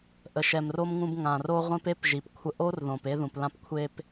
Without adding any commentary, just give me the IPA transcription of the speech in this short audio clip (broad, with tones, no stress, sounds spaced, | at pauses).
ʔ ə˨ ʃ ɛ˨ m r o˧ m ŋ ũ˧ b ŋ ã˨ r o˧ ʁʷ ẽ˧ p e˦ p ʒ i˨ p kʷʰ ə˧ ʔ o˦ r ð õ˨ p e˧ ð ũ˨ p l ã˧ p kʷʰ e˧ p